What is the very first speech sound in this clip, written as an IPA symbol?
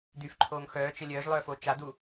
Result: d̪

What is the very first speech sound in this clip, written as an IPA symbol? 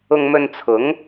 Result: ʊ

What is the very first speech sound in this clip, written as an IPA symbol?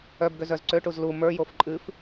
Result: œ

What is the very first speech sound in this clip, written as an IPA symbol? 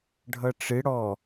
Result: ɖʱ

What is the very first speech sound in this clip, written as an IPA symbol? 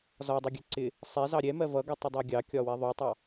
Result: z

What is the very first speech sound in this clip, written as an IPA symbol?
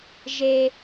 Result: ʒ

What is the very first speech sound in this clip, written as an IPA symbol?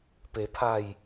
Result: p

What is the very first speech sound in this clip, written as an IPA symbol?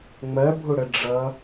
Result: ŋ͡m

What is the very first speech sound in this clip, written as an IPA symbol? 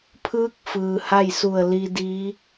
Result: pʰ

